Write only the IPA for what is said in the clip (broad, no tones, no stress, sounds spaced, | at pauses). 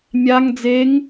mʲ a ŋ d͡z e ŋ